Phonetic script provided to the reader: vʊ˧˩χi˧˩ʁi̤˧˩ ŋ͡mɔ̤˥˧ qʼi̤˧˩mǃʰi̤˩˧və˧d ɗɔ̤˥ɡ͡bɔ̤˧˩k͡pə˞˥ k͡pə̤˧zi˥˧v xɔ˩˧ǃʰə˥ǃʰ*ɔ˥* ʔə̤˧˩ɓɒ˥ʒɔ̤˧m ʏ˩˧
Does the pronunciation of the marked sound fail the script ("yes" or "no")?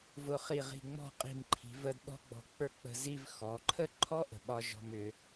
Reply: no